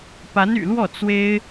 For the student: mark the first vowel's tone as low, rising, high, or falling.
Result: rising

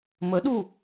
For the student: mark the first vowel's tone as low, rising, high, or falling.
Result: rising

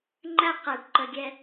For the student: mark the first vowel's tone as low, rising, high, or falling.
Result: high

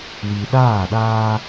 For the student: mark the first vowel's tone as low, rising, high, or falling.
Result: low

